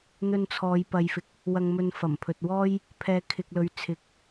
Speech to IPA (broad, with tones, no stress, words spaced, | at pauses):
n̪ɵ˧nt͡sʰɔː˨˧j pɐ˨˧jfɪ˨k̚ | wɐ˧ŋmɵ˧nfɐ˨˩mpʰɵ˨t̚ wɔː˥j | pʰɛː˧kʰɪ˧k̚ lɵ˨˧ɥt͡sʰɪ˨˥k̚